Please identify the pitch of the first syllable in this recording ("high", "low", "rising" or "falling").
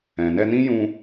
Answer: low